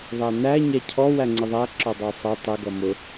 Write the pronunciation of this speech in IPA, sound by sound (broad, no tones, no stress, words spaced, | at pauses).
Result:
ðˤænæ ɲæcʰɔ wæŋ͡ǀɪðˤæ ǁɔdˤɑsˤʌ tˤɪ ɡʌmʊ